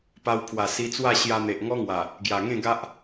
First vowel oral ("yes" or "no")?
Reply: yes